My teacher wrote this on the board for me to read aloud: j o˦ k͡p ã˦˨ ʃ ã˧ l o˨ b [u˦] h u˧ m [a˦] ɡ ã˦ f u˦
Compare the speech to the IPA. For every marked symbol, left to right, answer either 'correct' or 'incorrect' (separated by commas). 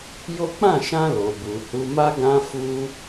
incorrect, correct